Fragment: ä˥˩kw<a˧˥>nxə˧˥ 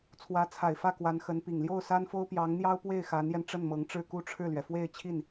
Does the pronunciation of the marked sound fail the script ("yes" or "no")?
no